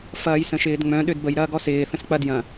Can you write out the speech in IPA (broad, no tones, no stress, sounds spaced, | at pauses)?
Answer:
f ɐː j s ə̃ ʃ ɪː d ŋ͡m œ̃ ɗ ø d b ə j ɾ ɐː ɡ ɔ s ɪː θ ə̃ s k͡p ɐ d j ɐ̃